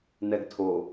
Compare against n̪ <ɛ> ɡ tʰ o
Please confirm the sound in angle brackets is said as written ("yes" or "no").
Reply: yes